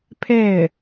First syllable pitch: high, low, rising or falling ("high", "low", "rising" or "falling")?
falling